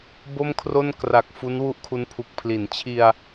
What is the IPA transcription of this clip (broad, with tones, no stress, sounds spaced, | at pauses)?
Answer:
b o˥˩ m kʰ r o˥˩ n k r a˨˩ k̚ f u˦˥ n w u˥˩ ʔ kʰ u˦˥ n pʰ u˨˩ k̚ pʰ l i˩˦ n t͡ɕʰ i˧ a̯